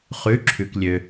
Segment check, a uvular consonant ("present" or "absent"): present